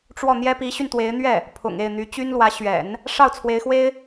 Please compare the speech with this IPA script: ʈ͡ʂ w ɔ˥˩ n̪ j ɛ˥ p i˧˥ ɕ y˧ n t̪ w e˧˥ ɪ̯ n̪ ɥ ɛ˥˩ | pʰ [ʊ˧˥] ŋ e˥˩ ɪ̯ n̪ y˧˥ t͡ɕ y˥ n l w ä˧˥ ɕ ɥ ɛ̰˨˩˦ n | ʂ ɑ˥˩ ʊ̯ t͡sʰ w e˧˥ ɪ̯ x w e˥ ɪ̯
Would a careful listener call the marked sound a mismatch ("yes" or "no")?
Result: yes